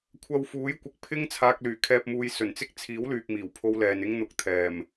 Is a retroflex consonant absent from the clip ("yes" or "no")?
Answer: yes